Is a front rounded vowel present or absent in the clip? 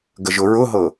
absent